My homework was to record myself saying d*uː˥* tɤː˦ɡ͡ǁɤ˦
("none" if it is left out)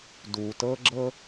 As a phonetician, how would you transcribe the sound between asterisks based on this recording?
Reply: uː˩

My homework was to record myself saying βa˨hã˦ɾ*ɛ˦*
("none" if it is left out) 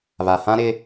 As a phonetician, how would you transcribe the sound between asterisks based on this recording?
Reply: ɪ˦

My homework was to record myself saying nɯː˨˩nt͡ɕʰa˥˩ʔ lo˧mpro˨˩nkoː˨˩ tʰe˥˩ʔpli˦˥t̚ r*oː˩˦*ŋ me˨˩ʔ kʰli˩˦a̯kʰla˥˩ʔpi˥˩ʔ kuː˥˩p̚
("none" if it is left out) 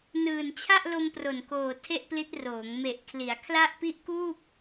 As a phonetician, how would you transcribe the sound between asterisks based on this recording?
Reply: oː˩˦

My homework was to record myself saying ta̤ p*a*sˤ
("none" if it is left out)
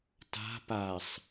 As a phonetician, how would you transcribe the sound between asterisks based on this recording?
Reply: a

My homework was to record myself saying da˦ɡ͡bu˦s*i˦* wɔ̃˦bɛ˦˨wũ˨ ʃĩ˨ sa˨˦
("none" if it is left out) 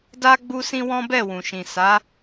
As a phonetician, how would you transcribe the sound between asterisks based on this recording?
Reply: ĩ˦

